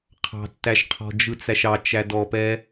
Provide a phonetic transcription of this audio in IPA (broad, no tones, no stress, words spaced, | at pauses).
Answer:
qʰɑ̤tːæʃqʰɔ̤ d͡ʒɯt͡sæʃɑt͡ʃæ dɔpɛ